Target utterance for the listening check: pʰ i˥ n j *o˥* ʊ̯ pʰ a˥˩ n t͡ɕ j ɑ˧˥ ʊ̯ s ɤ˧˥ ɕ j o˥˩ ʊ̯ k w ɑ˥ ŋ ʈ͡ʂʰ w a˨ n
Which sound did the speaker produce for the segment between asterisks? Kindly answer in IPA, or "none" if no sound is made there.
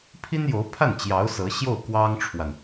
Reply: o˧˥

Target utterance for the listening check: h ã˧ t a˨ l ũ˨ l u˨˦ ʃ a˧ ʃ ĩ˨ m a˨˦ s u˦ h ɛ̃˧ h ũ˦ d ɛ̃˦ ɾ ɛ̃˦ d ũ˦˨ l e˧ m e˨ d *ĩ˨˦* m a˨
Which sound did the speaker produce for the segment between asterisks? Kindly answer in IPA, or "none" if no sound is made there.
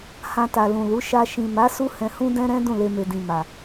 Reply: ĩ˨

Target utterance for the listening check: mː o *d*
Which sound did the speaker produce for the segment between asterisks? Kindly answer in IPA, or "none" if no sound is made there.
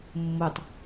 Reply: tˤ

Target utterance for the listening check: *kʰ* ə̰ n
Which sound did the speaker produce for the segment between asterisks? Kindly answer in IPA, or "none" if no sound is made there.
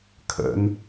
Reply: kʰ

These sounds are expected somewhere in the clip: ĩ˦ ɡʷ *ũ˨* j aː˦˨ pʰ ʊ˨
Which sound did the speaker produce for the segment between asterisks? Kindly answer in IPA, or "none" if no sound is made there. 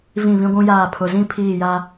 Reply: ũ˦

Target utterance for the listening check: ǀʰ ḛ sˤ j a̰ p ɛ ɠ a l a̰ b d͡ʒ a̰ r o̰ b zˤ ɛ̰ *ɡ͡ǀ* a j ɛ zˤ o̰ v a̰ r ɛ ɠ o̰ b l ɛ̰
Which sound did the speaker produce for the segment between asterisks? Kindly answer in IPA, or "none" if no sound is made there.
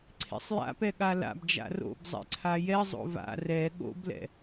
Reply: ǀʰ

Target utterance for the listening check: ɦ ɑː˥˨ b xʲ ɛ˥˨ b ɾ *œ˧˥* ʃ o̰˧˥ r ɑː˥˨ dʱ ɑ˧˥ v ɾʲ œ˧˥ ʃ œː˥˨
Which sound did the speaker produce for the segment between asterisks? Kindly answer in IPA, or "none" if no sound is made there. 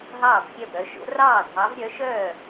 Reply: œ˧˥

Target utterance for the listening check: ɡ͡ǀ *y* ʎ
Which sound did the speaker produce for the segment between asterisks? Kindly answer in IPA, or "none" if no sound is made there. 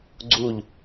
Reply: u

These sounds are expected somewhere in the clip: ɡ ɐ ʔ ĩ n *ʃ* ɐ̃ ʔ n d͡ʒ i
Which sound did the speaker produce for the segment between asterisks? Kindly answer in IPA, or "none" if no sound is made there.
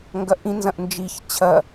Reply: z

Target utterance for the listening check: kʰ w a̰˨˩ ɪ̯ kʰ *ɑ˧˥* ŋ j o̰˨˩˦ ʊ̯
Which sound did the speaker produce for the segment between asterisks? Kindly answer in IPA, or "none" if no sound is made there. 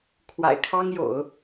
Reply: ɑ˥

